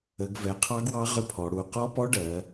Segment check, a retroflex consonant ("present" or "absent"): present